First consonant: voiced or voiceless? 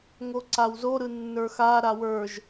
voiced